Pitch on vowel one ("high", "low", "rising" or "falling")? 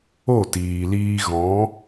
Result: falling